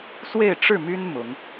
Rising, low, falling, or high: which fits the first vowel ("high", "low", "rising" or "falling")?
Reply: falling